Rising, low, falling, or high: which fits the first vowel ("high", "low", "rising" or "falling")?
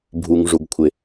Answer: low